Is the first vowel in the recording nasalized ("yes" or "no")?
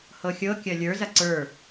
no